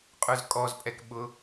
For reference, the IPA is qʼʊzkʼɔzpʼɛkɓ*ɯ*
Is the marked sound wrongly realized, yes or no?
yes